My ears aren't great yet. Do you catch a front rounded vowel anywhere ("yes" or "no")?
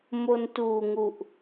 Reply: no